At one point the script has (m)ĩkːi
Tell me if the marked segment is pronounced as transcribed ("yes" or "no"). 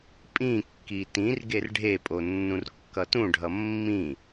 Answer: no